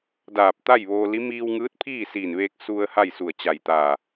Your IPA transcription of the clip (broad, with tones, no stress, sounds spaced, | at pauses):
d aː˧˩ p̚ t̪ a˥˨ j ʋ oː˧ l i˧˥ m iː˧ w ŋ ɯː˧˥ t̚ pʰ iː˥˨ s iː˧˩ n ʋ eː˧ k̚ s u˧ ə̯ h a˥˨ j s u˧˩ ə̯ t͡ɕ a˧˩ j t̪ aː˧˩